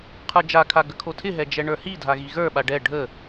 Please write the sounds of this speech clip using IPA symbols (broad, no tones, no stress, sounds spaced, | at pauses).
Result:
qʰ ə˞ d͡ʒ a kʰ a ɡ ə kʰ o tʰ ɪ ɦ ɛ d͡ʒ ɛ ɳ ə˞ h i dʱ a ɣ i ɣ ə˞ ɓ a ɖ ɛ ɖʱ ə